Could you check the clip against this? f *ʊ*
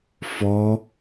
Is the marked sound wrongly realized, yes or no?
yes